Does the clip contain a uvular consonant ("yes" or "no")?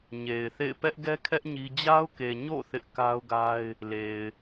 no